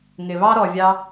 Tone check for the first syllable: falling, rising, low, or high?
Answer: low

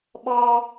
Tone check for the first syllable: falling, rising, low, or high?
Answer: high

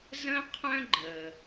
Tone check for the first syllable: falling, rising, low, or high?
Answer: high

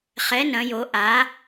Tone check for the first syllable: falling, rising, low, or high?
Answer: rising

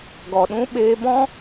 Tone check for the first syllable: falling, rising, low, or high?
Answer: low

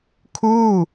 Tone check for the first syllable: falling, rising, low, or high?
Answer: falling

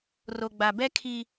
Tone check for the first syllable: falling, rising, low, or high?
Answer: low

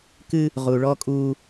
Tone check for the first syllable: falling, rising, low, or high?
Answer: high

